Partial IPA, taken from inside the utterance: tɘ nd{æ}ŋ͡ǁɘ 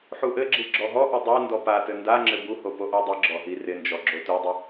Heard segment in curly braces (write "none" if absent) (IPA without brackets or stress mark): a